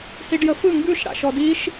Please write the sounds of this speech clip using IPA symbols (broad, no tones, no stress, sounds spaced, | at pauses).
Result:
h i ɖ j ə f ɯ ŋ ɡ ʉ ʃ ɽ a̰ ʃ ɔ d i ʃ